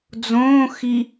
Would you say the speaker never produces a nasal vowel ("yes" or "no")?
no